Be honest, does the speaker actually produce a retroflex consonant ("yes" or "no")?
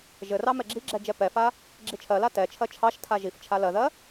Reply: no